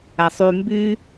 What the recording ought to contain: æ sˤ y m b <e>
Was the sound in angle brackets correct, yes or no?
no